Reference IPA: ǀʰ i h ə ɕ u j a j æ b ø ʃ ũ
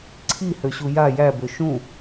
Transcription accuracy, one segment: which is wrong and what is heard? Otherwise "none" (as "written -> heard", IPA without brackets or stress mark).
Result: ə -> ø